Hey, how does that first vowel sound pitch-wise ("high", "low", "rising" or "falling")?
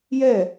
falling